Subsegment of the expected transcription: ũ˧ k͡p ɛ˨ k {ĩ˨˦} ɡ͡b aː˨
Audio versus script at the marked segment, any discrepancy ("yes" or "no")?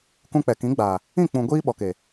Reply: no